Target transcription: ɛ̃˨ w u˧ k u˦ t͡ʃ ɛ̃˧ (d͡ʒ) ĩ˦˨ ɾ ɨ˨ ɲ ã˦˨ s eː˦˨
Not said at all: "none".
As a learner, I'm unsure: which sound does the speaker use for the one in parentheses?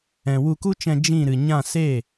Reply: d͡ʒ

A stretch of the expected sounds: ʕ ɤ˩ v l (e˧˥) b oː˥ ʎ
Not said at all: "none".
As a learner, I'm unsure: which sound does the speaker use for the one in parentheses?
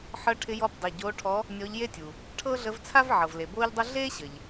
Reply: e˩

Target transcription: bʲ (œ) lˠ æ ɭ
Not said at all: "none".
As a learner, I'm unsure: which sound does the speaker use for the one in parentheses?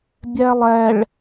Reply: æ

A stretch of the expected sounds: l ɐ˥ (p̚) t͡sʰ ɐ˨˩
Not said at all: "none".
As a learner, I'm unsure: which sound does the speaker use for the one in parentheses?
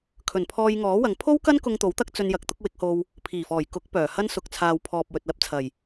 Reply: p̚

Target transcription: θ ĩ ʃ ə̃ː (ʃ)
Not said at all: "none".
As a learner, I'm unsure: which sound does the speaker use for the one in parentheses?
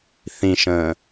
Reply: none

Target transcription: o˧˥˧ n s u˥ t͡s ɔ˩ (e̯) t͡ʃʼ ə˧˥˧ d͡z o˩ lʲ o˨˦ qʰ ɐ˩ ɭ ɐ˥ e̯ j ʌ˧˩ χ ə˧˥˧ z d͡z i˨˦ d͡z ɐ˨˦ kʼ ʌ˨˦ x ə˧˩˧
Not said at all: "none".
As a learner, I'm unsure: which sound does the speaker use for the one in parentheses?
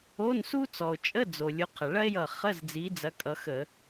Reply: o̯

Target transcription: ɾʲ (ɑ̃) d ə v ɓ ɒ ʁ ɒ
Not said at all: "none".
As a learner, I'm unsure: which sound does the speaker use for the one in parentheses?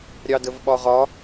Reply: ɑ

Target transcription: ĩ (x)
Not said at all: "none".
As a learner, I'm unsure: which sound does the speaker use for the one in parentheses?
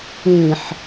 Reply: ħ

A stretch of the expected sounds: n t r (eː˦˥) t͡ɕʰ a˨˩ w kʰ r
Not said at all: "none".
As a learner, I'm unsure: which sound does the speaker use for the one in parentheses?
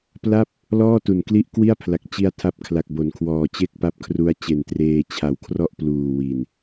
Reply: eː˧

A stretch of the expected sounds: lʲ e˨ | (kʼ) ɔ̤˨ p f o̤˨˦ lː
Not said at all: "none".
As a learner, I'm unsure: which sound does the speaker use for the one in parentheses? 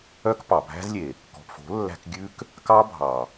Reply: k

